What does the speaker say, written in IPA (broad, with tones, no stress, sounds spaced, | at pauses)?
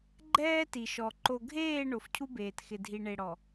ɡ͡ǃ ɛː˦ t i˨ ʃ ɔ˨ ǃ o˨ ɡʱ eː˦˨ ɳ o˨ f cʰ u˦ b eː˨ t x ɪ˨ dʱ i˨ ɳ e˨ ɽ ɔ˨